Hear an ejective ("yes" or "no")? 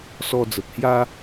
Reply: no